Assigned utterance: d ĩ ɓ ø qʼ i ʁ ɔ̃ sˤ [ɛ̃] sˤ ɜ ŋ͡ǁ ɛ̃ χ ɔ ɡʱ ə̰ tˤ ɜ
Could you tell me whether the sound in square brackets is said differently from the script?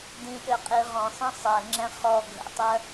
yes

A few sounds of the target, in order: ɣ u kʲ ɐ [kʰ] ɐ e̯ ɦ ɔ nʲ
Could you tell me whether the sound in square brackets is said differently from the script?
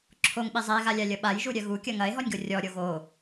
yes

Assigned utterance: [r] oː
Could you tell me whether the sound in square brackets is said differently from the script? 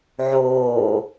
yes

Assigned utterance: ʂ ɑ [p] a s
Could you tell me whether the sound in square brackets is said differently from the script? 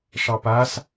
no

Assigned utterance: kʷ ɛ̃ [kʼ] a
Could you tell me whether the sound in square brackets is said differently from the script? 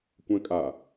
no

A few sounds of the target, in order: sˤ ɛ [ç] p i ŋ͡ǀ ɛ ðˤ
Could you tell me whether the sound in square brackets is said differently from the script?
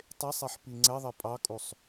yes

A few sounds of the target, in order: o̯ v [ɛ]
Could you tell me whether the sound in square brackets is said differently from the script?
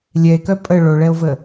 yes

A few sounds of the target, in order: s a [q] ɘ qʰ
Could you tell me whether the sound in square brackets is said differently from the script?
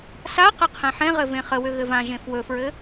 no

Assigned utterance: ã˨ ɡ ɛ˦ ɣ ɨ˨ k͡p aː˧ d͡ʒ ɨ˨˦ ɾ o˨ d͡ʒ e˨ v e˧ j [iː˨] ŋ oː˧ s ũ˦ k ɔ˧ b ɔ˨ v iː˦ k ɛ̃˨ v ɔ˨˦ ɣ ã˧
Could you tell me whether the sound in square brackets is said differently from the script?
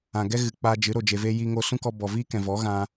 yes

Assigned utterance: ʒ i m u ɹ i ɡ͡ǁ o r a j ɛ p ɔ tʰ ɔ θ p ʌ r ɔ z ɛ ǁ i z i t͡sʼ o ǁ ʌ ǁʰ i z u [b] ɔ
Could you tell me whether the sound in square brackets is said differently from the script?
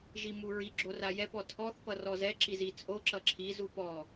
yes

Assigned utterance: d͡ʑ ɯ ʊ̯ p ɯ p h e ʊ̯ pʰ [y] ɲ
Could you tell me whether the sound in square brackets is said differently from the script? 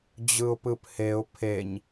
yes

